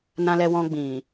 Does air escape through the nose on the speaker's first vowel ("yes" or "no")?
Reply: yes